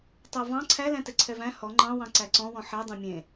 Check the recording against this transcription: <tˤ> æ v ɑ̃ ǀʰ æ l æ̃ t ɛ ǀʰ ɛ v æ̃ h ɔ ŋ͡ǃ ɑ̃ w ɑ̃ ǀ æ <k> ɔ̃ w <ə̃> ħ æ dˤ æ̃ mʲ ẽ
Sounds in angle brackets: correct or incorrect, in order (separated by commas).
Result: correct, incorrect, incorrect